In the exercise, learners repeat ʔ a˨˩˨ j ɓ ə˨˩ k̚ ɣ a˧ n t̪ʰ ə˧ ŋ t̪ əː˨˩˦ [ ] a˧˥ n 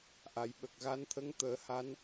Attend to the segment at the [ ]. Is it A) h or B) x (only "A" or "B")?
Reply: A